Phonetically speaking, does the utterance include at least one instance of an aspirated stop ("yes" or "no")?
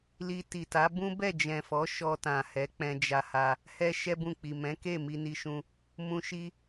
no